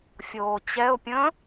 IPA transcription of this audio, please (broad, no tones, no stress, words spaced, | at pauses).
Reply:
fʲoːt͡ɕɛʊ̯pʲə̃ː